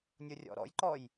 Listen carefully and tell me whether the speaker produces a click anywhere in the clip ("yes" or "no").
yes